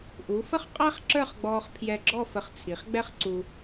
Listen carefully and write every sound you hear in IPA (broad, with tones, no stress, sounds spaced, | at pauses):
ʔ u˩˧ f ə˥ χ qʼ æ˥ χ ǁ ə˞˥˧ χ ɡ͡b ɔː˧ χ pʰ j ɛ˧˩ ɡ͡ǁ ɔ˥˧ f ə˧˩ χ t͡sʰ i˩˧ χ ɡ͡b ɛ˥ χ ǀ u˧